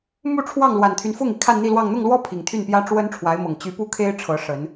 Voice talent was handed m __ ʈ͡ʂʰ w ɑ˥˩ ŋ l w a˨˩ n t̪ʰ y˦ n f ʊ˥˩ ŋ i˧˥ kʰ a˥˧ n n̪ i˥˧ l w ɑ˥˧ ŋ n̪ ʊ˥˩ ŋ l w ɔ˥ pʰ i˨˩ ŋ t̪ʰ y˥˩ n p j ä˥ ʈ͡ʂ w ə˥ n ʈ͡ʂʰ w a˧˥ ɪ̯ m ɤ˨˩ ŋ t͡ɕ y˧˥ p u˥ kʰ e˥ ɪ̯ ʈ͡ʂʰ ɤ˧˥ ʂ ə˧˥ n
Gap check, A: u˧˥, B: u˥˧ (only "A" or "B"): B